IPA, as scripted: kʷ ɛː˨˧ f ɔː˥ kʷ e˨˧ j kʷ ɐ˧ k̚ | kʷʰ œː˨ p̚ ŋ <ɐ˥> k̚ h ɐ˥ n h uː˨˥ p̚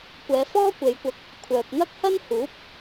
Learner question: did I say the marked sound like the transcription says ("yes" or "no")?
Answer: yes